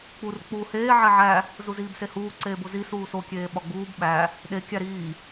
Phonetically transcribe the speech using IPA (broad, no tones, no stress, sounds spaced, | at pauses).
k͡p u r k͡p uː h eː ʕ e ʕ æ | z u z iː b s e h uː ǀ eː b o z i s uː s o kʲ eː ɓ ɒ ɡ͡b uː b ɓ æ | ɗ e kʲ æ ɾ iː